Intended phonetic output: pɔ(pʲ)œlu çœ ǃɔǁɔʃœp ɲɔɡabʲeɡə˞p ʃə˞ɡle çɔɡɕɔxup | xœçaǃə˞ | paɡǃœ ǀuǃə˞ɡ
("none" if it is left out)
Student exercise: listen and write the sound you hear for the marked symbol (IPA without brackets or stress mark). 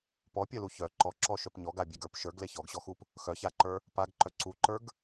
pʲ